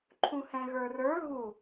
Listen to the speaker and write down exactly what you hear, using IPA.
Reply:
ǃʰũhɛ̃ɣə˞rə˞ ɣu

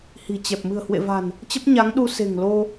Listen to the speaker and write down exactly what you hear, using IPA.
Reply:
hi̤˨˩t͡ɕɛ˨˩p̚ mɨ̤˨˩ə̯hwḛ˧˨ va̤˨˩n | t͡ɕə˦˥p̚ɲa˨˦ŋɗu˧ se̤˨˩ŋlo˧

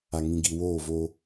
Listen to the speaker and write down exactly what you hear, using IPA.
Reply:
a˨ŋĩ˨ɡi˨ woː˦˨vo˦

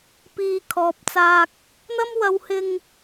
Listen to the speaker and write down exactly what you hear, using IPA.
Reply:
piː˧ kʰɔː˨p̚t͡saː˧k̚ | n̪ɐ˥mwɐ˧whɪ˧ŋ

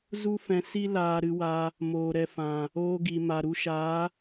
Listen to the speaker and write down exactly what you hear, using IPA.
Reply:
zu˦ fɛ̃˧si˦ laː˧ɾɨ˧wa˧ | moː˨ɾɛ˨fã˨ | oː˧ɡi˨ma˨ɾu˧ ʃaː˨˦

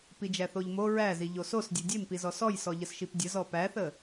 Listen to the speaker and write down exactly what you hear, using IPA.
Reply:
pid͡ʒæθoʎmo ɹæzi ʎososdʲe dʲempizɔ sɔjsɔ ʎəsʃipdʲə zɔpæθə

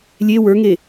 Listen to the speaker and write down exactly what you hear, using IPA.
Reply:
lʲe wə˞ŋe

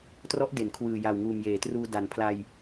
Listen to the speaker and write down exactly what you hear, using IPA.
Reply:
trɔ˦˥ʔde˩˦nkʰwɯː˨˩ja˨˩w ŋuː˨˩mjeː˩˦truː˧ da˨˩npʰla˧j

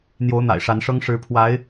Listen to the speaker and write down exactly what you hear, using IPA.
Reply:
n̪jo˧˥ʊ̯n̪a̰˨˩ɪ̯ʂa˧˥nʂɤ˥ŋ ʂɻ̩˧˥ pʰwa˧˥ɪ̯

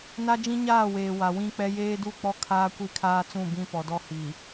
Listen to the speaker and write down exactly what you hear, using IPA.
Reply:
na˦d͡ʒĩ˦ɲaː˦˨weː˨ wa˨wĩ˦k͡pɛ˦ jeː˦du˦˨k͡pɔ˦ kʰaː˦kʷi˦˨kʰaː˦t͡sũ˦˨ bĩ˦pɔ˨dɔ˦ hi˨

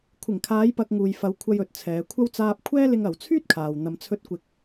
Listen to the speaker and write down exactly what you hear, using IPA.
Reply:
kʷʰɪ˨˩ŋkʰaː˨˧jpɐ˨k̚ ŋuː˨jfɐ˨˧w kʷʰɐ˧jɵ˨t̚t͡sʰɛː˨˧kʷʰɐ˥w t͡saː˧p̚kʷʰɛː˥lɪ˧ŋɐ˨w t͡sʰyː˥t̚kʰaː˨w n̪ɐ˨mt͡sʰɵ˧t̚ kʷɪ˧k̚

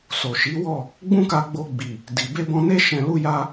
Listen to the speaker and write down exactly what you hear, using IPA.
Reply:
so˨ʃi˨˦wɔ˦˨ | ɡ͡bũ˦ka˧ɡ͡bo˧ ɡ͡bi˨ | di˨ be˧bɔ̃˧ne˦ ʃɛ̃˧lu˦ja˦

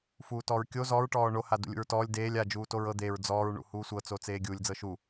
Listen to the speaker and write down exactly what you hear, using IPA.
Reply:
fuːtɔːɹkʲo zɔːɹ ʈɔːɳo hadṵlʲṵɹtɔːlʲ deːlʲ a d͡ʒuːtoɹɤ d̪eɹ d͡zɔːɹ ɳṵhuːsʷɤ t͡sot͡seːɡʲulʲ d͡zɤʃu

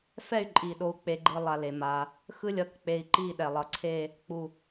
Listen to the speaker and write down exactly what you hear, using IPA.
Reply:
fɛ˥˧y̯ǃʼi˧˩ɗo˧u̯ k͡pe˧ɡ͡ǃɯ˧ lˠa˧le˩˧ma˧ | xɯ˥lʲʌ˧k k͡pe˧i̯ ǃi˥˧ɗɛ˧˩ lˠʌ˧˩ǀʰe˥˧ | k͡pu˧˩

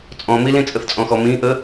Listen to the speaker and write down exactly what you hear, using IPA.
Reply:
t͡sʼɔ̃milĩt͡sʼəθ t͡sʼɔ̃xɔmĩ ʔə

